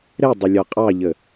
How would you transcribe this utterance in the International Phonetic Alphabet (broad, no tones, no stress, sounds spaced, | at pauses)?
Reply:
ɾ ɛ dˤ ʌ lʲ ɒ qʼ ɑ ʎ ə